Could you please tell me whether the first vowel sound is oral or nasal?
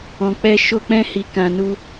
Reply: nasal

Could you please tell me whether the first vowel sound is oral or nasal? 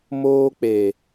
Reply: oral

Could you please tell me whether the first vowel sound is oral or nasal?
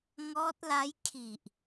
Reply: oral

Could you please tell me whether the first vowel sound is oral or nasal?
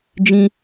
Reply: nasal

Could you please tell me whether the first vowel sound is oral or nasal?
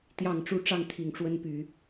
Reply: oral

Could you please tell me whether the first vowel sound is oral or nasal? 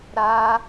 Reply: oral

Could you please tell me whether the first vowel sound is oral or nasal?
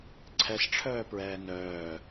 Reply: oral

